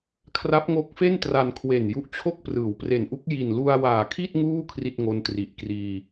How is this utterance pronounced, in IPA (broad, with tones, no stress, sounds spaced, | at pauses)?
kʰ r a˦˥ p̚ ŋ o˦˥ k̚ f e˥˩ n t r a˧ n kʰ w e˨˩ n j u˦˥ ʔ t͡ɕʰ o˥˩ k̚ p r ɯː˩˦ w p r e˨˩ n ʔ u˦˥ k̚ j i˨˩ n l u˧ a̯ w aː˨˩ kʰ i˥˩ t̚ ŋ uː˥˩ kʰ r i˥˩ t̚ ŋ o˦˥ n t r i˨˩ ʔ k r iː˧